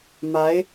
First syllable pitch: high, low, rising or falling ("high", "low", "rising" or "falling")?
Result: rising